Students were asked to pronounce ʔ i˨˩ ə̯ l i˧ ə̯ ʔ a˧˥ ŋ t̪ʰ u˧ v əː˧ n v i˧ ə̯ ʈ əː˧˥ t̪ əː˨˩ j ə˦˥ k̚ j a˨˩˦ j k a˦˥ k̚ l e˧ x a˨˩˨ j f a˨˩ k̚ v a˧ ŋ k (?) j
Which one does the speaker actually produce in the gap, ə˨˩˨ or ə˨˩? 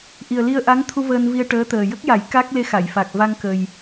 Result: ə˨˩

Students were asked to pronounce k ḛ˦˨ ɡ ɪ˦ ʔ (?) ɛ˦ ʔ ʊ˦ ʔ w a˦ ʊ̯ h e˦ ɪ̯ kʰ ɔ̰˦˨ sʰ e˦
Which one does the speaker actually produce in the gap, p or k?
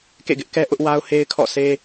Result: k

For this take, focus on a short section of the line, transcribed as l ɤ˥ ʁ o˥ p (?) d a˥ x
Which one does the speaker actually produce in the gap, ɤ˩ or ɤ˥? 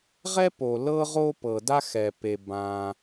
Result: ɤ˩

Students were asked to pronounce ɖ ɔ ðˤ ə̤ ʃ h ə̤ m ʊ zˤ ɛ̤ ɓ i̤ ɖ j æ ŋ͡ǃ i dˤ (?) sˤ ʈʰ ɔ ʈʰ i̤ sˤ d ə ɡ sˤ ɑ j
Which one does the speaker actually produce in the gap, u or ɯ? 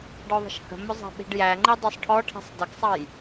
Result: u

